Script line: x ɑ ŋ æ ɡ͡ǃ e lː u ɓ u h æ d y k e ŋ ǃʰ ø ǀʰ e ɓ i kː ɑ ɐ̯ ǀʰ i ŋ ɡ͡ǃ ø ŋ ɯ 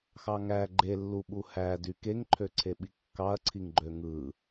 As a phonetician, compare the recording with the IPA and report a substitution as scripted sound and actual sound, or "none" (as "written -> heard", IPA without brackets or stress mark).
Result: none